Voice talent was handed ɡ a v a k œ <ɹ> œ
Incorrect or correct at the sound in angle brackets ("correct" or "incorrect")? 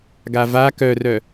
incorrect